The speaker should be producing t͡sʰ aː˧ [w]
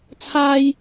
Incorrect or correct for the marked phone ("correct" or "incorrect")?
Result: incorrect